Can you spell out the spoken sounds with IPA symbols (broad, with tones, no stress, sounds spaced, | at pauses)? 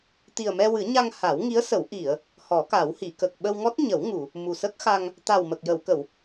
t̪ i˨˩ ə̯ m ɛ˧ w ɨ˨˩˦ ɲ a˧ ŋ h a˨˩˦ w ŋ i˧˥ ə̯ s ə˨˩˦ w ʔ i˨˩˨ ə̯ | h ɔ˨˩˦ k a˨˩˦ w h i˨˩˨ k ə˨˩ k̚ ɓ ə˧ w ŋ ɔ˦˥ t̚ ɲ ə˨˩˦ w ŋ u˨˩˨ | m u˨˩ s ə˦˥ k̚ x a˧ ŋ | t̪ a˨˩ w m ə˨˩ k̚ j ə˨˩˨ w k ə˨˩˨ w